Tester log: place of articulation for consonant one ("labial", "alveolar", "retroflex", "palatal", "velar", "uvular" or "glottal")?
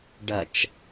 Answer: retroflex